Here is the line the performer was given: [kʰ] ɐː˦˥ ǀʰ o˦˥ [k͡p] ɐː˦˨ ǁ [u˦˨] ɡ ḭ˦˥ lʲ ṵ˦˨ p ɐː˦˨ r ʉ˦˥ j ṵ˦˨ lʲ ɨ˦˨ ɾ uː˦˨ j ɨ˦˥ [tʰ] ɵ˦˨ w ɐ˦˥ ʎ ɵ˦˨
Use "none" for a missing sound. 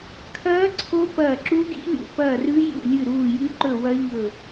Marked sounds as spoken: kʰ, p, u˦˥, ǃ

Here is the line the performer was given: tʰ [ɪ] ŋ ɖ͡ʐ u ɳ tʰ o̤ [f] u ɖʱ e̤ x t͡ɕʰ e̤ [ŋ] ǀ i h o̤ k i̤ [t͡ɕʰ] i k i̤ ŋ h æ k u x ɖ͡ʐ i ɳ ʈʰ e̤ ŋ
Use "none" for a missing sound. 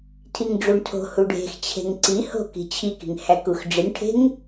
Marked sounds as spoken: i, h, ŋ, t͡ɕʰ

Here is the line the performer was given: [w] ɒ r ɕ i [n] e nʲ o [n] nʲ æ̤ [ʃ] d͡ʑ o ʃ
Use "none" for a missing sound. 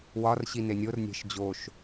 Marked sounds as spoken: w, n, r, ʃ

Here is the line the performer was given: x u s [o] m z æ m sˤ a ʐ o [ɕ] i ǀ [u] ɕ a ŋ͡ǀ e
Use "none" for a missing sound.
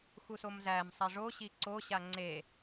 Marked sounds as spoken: o, ɕ, o

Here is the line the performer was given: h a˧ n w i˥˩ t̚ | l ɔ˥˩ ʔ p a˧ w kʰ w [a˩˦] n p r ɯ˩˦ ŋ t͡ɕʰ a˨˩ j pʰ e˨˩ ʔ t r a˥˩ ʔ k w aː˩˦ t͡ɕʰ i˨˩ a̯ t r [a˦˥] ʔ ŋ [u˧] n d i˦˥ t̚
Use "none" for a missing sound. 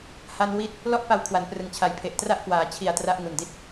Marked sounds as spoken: a˩˦, a˦˥, u˨˩

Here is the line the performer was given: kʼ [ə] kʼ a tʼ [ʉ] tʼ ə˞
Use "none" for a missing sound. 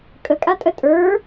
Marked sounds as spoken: ə, ə

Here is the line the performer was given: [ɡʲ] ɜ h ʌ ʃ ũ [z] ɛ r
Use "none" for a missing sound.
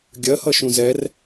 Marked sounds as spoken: ɡʲ, z

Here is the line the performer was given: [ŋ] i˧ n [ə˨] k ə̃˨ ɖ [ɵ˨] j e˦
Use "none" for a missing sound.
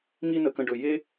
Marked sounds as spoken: ŋ, ə˨, ɵ˨

